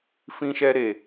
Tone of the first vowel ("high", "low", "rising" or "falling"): high